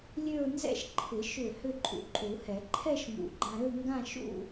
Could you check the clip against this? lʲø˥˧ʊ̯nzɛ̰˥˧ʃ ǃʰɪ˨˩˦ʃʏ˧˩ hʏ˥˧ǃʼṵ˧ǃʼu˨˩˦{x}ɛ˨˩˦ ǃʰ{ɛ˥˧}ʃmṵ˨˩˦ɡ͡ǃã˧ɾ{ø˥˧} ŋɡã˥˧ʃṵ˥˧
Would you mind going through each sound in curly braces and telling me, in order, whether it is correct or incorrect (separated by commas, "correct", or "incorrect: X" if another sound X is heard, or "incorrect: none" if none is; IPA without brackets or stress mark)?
incorrect: h, correct, correct